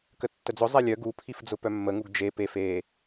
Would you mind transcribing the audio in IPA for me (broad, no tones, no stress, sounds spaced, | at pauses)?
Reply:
k ə tː ə d͡z ʊ zˤ e lʲ œ ɡ u pʰ i f d͡z ʊ p œ mː ə ŋ u ɡ d͡ʒ e p e f e